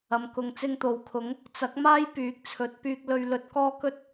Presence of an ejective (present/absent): absent